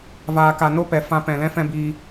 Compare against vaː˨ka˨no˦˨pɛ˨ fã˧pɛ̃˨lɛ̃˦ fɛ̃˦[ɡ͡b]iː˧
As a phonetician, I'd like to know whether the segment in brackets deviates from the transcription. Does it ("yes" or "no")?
yes